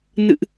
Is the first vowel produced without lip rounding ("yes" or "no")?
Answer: yes